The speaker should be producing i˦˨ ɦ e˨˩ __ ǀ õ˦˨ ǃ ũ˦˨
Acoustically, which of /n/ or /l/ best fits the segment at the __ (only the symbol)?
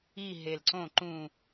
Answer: l